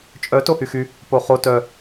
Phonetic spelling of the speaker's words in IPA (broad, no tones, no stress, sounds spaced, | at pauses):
t͡ʃʼ œ t o h y x y | p o χ o t œ